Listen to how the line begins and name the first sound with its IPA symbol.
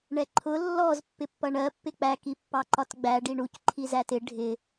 ɳ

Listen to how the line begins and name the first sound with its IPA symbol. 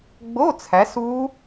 ɡ͡b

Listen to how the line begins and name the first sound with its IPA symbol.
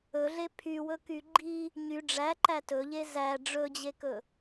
ɵ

